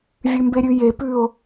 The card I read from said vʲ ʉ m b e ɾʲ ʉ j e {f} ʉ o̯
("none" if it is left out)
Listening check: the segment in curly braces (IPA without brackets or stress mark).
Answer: p